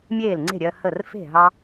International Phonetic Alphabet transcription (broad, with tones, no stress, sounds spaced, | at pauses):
mʲ eː˥˩ l ŋ͡ǀ e̤˥˩ ɾʲ ɜ˧ h ə˥˩ r f e̤˥˩ ɦ ɑ˥